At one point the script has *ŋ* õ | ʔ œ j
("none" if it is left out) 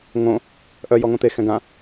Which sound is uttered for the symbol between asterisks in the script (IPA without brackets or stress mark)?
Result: ŋ